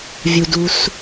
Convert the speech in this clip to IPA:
vʲ u˩ d u˩ s

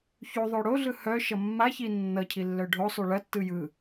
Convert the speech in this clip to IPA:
ç u ðˤ o ɽ o ɮ ɯ h œ ʃ ʌ mː a ç i nː ʌ cʰ i lː œ ɖʱ o sˤ u ɭ ɐ tː ɯ j ɯ

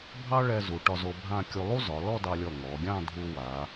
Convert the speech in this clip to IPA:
bʱ ɑ˥ ɭ ɛ˧ z u˩˧ ʈ ɒ˧ z o˧ bʱ ã˥˧ kʲ u˧ lˠ u˥ z ɒ˩˧ l ɔ˥˧ d ɑ˧ lʲ ɔ˧˩ ŋ ɔ˩˧ ɡʲ ɑ̃˥˧ dʱ u˧ w a˩˧

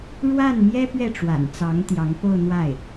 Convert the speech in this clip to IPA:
ɻ w a˥˩ n m j ɛ˥ p ɥ ɛ˥˩ ʈ͡ʂ w a̰˨˩ n t͡s ɑ˧˥ ŋ t̪ j ɑ˧˥ ŋ p o˥˧ ʊ̯ n̪ w a˥˩ ɪ̯

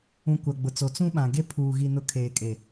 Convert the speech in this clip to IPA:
ũ˨ kʷ a˨ ɡ͡b ʊ˨ t͡s o˨ t͡s ũ˦ ɓ ã˨ ɡ e˦ pʰ uː˨ ɣ i˨ n ʊ˨ kʰ eː˨ kʼ e˨

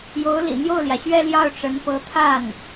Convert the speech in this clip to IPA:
j o˧˥ ʊ̯ l ḭ˨˩ n̪ j o˥˩ ʊ̯ l j ä˩ ɕ ɥ ɛ˥˧ l j ɑ˥˩ ʊ̯ ʈ͡ʂ ə˧˥ n p ɤ˧˥ t̪ʰ a˥˩ n

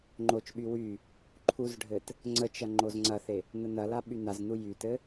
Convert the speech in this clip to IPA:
ŋ͡ǃ o t͡ʃ ɓ y w y | ǃʰ u z ɖʱ ɘ t | ŋ͡ǀ ə t͡ʃ ɐ ŋ͡ǃ o z ŋ͡ǀ ɐ θ e | n ə n ɐ l a ɓ y n a z n u j y t ɘ

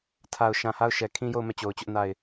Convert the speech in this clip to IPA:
tʰ a˨ ʊ̯ ʃ ã˨ h a˦˨ ʊ̯ ʃ ɛ˨ kʰ ĩ˦ j o˦˨ ʊ̯ m ɛ˦˨ t͡ɕ o˨ ʊ̯ t͡ɕ ʊ˦ ʔ n a˦˨ ɪ̯

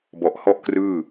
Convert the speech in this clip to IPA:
b ɔ˨˩ ʔ h ɔ˥˩ ʔ k r ɯː˥˩

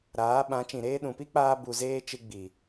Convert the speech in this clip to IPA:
ɾ aː˨˦ ɓ ã˨˦ t͡ʃ ĩ˨ ɾ eː˧ ɗ ũ˨ p i˦ k͡p aː˧ b u˨ z eː˧ t͡ʃ ɨ˧ ɡ͡b i˨

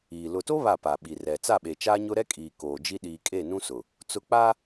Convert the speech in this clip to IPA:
iː˨ l ʊ˨ t o˦ β a˦˨ p a˨ ɓ i˨ r ɛ˨ t͡s a˦˨ ɓ e˨ t͡ʃ aː˦ ɲ ʊ˦ ɾ ɛ˦ kʼ iː˨ k oː˨ d͡ʒ i˦ ɗ iː˨ kʼ e˦˨ n ũ˦ s ʊ˨ | t͡s ʊ˦ k͡p aː˦

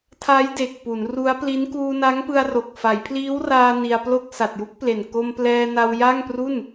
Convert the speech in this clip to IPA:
tʰ a˦˥ j d e˨˩ k̚ p u˩˦ n r u˦˥ a̯ p l i˦˥ n k uː˧ n a˦˥ ŋ p ɯ˧ a̯ r o˨˩ k̚ f a˩˦ j pʰ l iː˦˥ w r aː˧ n i˧ a̯ p l o˥˩ k̚ s a˨˩ t̚ j u˦˥ k̚ p l e˨˩ n k o˧ m p l ɛː˧ n a˧ w j a˥˩ ŋ p r u˥˩ n

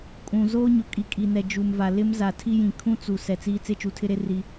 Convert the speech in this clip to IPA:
kʼ ũ˨ z oː˦ ɲ ʊ˨ kʼ i˨ kʼ i˨ n ɛ˨ d͡ʒ u˨ m v a˨ l ɪ˦ m z a˨ tʰ i˦ j ĩ˨ kʰ ũ˦ t͡s u˨ s ɛ˨ t͡s iː˦ t͡s e˦ t͡ʃ u˨ tʰ ɪ˦ ɾ e˦ r i˦

